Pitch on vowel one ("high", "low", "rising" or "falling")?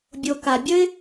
low